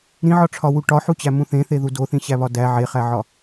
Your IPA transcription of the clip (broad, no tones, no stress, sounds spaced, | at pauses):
ɾ ĩ ʕ ɒ ʈ͡ʂʰ ɒ w u ʈ ɒ ħ u t͡ɕ æ m ũ θ ẽ θ e ð u d o θ ĩ ɕ æ β ɒ d æ ʕ e χ æ ʕ ɒ